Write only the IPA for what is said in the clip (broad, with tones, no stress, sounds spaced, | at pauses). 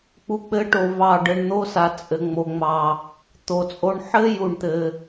k͡p u˨˦ k͡p ɘ˨˦ ʈ o˨ v ɑ˦˨ ɖ ɘ˧ ɳ n̪ o˦ s a˨ t͡sʼ ɘ˨ ŋ͡m o˨ ŋ͡m ɑ˨ | t̪ o˨ t͡sʼ o˦ ɳ ħ ɘ˦ j u˦˨ ɳ t̪ ɘ˧